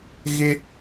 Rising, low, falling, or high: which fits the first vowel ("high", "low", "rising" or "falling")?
high